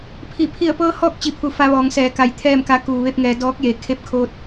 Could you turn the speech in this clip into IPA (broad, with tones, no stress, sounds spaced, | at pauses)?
pʰ i˧˩ pʰ i˧˩ ə̯ p ɤː˧ h ɔː˥˨ k̚ t͡ɕ i˧˩ pʰ u˩˧ f a˧ ʋ ɔː˩˧ ŋ s ɛː˩˧ k a˧˩ j t̪ʰ ɛː˥˨ m k a˧˥ k uː˩ ʋ e˥˨ p̚ ŋ ɛː˩˧ d ɔː˧˥ k̚ j e˩˧ kʰ e˧˥ p̚ kʰ o˧ t̚